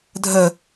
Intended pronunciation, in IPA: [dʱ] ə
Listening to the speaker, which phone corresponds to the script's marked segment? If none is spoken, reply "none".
dʱ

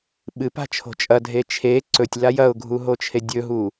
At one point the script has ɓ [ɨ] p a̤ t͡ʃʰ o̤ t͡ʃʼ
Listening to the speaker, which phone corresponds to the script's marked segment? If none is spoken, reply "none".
ɨ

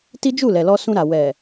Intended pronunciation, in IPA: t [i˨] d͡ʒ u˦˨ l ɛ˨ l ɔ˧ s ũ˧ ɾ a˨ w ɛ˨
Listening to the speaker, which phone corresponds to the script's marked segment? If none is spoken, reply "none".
i˦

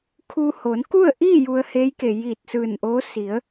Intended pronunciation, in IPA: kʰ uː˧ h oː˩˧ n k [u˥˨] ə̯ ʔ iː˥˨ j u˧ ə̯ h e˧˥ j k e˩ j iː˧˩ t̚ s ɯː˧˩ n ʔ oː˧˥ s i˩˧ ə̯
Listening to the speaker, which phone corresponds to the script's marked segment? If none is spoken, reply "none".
u˥˨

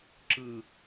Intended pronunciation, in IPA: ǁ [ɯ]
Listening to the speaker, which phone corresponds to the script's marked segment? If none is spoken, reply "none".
ɯ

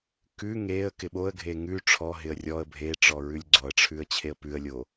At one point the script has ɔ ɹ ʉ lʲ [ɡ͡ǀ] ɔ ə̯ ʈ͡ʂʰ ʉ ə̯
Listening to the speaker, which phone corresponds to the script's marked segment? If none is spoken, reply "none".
ɡ͡ǀ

